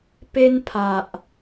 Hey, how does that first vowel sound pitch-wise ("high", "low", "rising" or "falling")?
high